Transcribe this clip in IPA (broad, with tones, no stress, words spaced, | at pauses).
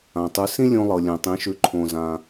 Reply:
ã˩tˤʉ˩˥ sĩ˥lʲõ˧lˠɤ˩ lʲɛ̃˩tˤĩ˩˥ʃʉ˩˥ ǃʰõ˩zã˩